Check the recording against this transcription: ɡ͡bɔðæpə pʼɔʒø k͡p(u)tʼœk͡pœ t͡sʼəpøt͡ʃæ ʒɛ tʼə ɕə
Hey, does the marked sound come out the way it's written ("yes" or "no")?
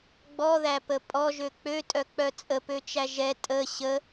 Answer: no